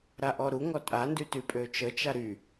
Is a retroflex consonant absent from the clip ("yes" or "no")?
yes